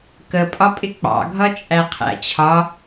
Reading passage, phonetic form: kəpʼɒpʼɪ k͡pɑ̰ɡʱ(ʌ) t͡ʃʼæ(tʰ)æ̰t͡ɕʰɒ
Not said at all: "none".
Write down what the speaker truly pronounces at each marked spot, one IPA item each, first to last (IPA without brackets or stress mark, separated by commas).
ʌ, qʰ